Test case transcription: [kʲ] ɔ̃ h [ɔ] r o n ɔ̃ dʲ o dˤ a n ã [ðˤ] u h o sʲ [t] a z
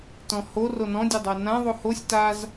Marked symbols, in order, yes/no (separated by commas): no, no, yes, yes